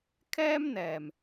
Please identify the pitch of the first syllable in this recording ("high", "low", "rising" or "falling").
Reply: high